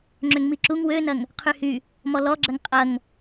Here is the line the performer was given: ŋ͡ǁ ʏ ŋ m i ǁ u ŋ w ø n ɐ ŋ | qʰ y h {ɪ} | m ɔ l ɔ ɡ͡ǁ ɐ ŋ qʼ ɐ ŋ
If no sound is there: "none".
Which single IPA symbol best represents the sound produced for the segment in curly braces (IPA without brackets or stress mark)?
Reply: y